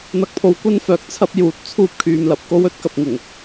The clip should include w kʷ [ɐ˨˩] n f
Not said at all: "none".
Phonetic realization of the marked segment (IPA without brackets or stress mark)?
ɐ˥